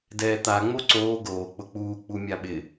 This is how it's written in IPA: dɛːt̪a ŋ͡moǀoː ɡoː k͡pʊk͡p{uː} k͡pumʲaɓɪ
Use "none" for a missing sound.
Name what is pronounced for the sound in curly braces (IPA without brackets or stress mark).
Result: uː